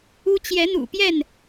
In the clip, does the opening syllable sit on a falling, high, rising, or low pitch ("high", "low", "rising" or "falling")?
high